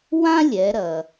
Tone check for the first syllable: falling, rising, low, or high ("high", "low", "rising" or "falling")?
high